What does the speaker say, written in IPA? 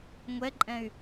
ŋʷ ɛ ǃʼ ɛ̃ y̯

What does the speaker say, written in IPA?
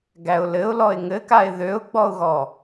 ɡ æ ʊ̯ l ɘ ʊ̯ l ɔ ɪ̯ ŋ ɘ k a ɪ̯ ð ø ʊ̯ ɡ͡b ɔ ʊ̯ ɣ ɔ

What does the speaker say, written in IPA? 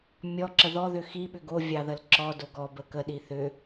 mʲ ɔ ǁ ə ð ɔ ð ʏ x i ɓ ʏ ɡ o vʲ ɑ ð ə l ǁ ɔ d o ɡ ɔ b ə k ə ɗ i θ ʏ

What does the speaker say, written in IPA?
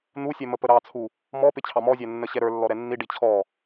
n̪ u sʲ ɛ m ə p ə ɾ ɑ t͡sʰ u | m ɔ p ɪ t͡ɕʰ ɑ m ɔ zʲ æ nː ə ɕ ɛ ɾ ə˞ lː ɔ ɾ ɛ nː i ɖ i t͡ɕʰ ɔ

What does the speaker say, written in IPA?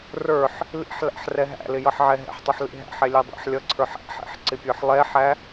r ə˞ ħ | l ḭ ħ l æ̰ ħ r ɛ ɦ æ̰ l ɪ j ʌ ħ ʕ ɛ ɦ ɛ̰ ħ tˤ ʊ ħ l ḭ ɦ æ̰ ħ ɛ lʲ ɛ dˤ æ̰ ħ lʲ ʌ ǀʰ ə˞ ħ æ̰ ħ ɛ̰ ħ ǀ ɪ pʲ ə˞ ħ lˠ ɛ ħ æ

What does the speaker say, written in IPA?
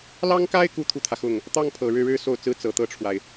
l ɑ˥ ŋ k a˥ ɪ̯ k u˥ t̪ʰ u˥˩ t̪ʰ ä˩ x ʊ˥˩ ŋ | t̪ ɑ˥˩ ŋ pʰ ɤ˨˩ ɻ ɻ̩˥˩ ɻ ɻ̩˥ s o˥˩ ʊ̯ t͡s ɹ̩˥ t͡s ɤ˨˩ t̪ ɤ˥˩ ʈ͡ʂʰ w a˩ ɪ̯

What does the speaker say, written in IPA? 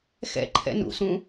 x ɛ̰ ǃʰ ɛ̰ n ṵ s ũ

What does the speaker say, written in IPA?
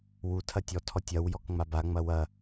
w u tʰ ɐ tʲ ɔ tʰ ɔ tʲ ɐ w j ɔ k ŋ͡m a b a ŋ͡m ɐ w ɐ

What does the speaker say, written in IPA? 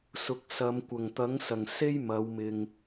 s ʊ˨ k̚ s ɐ˨˧ m kʷ ɐ˨˩ ŋ t̪ ɐ˨˥ ŋ s ɐ˨˩ ŋ s e˥ j m ɐ˨˧ w m ɪ˨ ŋ

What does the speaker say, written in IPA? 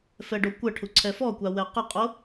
f ɛ ɖ o kʷ ə ʈʰ u ǀʰ ɛ f ɔ kʷ a w ɛ q ə qʼ o

